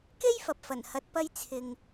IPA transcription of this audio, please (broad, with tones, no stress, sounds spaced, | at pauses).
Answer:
k e˥ j f ɐ˨ p̚ f ɐ˨˩ n h ɐ˨˥ t̚ p ɐ˧ j t͡sʰ ɪ˨ ŋ